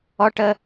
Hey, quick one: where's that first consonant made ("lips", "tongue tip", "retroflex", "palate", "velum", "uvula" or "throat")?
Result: retroflex